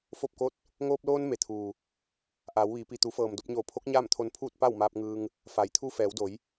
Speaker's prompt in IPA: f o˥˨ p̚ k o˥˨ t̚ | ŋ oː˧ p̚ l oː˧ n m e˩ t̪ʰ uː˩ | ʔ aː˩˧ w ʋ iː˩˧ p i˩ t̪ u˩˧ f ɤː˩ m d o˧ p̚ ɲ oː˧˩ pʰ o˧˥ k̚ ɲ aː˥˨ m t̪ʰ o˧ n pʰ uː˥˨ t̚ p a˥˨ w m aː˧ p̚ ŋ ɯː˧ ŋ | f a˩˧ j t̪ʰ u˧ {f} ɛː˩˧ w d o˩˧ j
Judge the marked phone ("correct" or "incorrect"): correct